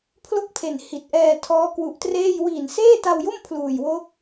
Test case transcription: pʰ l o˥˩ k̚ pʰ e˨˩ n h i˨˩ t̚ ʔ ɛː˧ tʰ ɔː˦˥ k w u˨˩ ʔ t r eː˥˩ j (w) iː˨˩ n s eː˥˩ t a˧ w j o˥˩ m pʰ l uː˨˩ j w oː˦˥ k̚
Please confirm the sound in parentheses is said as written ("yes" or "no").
yes